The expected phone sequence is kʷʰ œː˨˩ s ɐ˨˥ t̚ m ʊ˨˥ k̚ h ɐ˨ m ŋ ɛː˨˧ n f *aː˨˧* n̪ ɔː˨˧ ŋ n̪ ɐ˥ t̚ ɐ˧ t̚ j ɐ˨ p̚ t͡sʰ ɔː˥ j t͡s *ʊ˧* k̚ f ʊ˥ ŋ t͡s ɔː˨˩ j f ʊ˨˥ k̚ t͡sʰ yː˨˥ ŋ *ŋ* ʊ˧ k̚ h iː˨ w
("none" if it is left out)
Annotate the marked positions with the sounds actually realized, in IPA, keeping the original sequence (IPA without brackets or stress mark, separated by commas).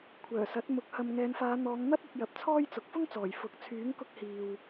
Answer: aː˨˧, ʊ˨˥, k